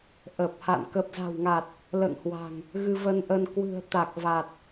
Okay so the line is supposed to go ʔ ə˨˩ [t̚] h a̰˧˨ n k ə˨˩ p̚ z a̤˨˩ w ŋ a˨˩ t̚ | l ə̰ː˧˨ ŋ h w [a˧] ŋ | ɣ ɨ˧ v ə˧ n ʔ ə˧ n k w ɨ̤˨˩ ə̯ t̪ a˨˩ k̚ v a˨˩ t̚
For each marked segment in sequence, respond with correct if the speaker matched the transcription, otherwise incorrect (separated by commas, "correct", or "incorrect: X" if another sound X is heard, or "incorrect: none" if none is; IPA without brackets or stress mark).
incorrect: p̚, incorrect: a̤˨˩